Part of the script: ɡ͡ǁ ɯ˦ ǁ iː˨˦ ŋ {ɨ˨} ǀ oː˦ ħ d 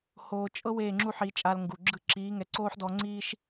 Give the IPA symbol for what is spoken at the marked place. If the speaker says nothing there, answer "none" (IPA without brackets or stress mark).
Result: ɛ˨